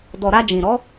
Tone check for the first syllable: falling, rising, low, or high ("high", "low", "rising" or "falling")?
low